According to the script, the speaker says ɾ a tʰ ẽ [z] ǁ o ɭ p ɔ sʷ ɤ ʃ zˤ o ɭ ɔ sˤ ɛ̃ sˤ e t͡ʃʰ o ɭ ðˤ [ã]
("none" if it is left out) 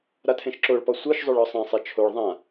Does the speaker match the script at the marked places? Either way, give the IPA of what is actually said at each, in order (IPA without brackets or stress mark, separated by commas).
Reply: ʃ, ã